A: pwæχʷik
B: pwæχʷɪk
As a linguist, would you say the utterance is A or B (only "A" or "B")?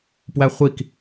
A